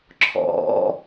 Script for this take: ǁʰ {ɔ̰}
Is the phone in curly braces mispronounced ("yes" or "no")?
no